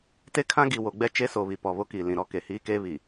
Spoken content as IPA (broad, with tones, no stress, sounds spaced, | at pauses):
t e˦ kʰ ã˦ ɡ i˨ w o˨ ɡ͡b ɛ˦ t͡ʃ e˦ s o˨ β i˨ p ɔ˨ β o˦ k iː˨ l ĩ˨ ɾ ɔ˦ k e˨ h iː˦ k eː˦ β i˨